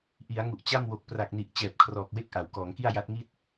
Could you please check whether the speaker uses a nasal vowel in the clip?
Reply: no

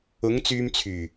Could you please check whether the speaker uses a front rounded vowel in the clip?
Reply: yes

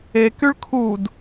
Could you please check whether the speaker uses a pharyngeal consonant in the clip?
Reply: no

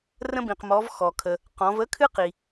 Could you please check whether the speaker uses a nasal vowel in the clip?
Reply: yes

